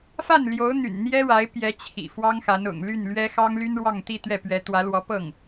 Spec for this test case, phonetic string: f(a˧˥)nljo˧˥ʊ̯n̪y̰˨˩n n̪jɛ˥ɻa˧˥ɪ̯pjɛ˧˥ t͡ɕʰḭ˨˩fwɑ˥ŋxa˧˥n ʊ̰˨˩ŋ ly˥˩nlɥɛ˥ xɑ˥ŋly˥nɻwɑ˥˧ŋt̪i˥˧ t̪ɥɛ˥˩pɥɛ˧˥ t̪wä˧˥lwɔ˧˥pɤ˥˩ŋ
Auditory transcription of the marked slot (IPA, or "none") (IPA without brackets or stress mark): a˥˩